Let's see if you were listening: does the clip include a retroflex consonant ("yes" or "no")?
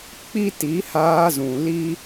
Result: no